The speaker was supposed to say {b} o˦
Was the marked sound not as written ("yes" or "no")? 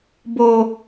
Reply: no